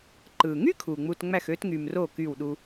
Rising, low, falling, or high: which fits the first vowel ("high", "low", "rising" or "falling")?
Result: low